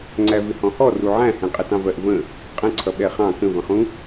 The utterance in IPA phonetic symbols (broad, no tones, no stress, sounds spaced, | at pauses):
ŋ͡ǀ æ v ɪ h ɔ̃ h ɔ r u ʕ æ̃ h ɛ̃ qʼ ɛ t ɑ̃ v ɜ ʔ v ə̃ | qʼ ə̃ ǀʰ ʌ ɓ ɛ χ ɑ̃ k ə̃ v ə̃ χ ũ